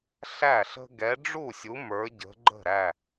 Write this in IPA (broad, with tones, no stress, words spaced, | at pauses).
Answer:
ɬæ˥˩ɬə̤˦ ɡɛ˨˦ɖ͡ʐu˥˩sʲu˨˦ mə˞˨˦ɟə̤˨˦ɡ͡ǃə̤˥˩ ɾæ˥˩